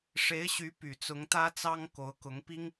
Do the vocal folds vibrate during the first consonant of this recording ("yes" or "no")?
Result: no